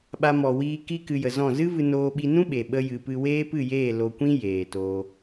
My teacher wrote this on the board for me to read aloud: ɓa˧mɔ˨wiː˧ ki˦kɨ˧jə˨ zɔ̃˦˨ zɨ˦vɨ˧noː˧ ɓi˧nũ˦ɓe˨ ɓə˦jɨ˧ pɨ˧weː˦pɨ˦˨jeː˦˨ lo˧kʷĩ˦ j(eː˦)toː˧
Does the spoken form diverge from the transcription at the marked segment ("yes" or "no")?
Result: yes